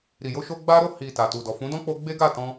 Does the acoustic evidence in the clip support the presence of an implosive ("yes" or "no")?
no